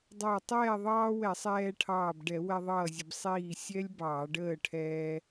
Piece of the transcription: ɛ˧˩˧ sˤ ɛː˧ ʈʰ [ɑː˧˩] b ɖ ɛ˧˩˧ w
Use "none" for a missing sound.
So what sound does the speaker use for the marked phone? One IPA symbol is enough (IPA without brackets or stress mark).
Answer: ɑː˧˩